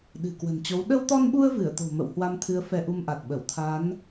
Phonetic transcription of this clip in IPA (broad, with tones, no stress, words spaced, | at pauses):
ɗɨ̤˨˩kwə̤˨˩nt͡ɕo˨˦w ɗə˧wt̪ɔ˧nɓu˧ə̯ vɨ˧˩ə̯t̪o̤˨˩ mə̰˧˨whwa˧mt̪ʰɨ˨˦ə̯ fɛ˧ʔu˧mʔa˨˩t̚ɓə˧˩w t̪ʰa˨˦n